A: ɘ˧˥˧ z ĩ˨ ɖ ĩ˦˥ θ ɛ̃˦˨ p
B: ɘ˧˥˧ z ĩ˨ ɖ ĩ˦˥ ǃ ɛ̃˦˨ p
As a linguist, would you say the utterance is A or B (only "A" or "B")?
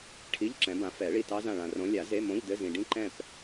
B